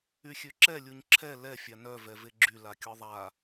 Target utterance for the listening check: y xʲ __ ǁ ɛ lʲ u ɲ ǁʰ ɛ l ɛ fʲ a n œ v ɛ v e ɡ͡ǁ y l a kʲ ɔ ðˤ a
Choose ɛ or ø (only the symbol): ø